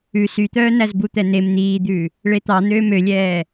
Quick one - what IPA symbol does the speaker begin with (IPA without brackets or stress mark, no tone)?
ʉ